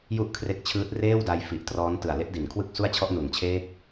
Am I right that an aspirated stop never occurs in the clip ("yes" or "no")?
no